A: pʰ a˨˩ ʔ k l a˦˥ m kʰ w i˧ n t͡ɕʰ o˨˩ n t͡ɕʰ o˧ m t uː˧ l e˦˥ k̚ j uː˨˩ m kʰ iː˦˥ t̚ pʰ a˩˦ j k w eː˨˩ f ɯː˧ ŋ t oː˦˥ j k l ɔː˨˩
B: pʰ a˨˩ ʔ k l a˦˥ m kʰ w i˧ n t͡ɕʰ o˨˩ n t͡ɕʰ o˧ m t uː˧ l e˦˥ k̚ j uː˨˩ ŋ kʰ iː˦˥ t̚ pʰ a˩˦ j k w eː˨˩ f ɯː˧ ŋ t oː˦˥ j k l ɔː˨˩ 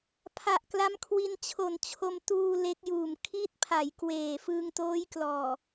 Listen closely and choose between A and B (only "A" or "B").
A